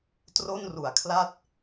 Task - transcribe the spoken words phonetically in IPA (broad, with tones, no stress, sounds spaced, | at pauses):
t r o˥˩ n r u˨˩ a̯ kʰ l a˥˩ t̚